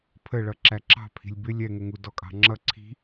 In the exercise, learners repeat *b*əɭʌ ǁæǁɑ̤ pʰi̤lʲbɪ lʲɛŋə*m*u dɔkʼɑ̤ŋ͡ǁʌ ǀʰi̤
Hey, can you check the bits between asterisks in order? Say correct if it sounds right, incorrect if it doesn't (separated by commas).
incorrect, incorrect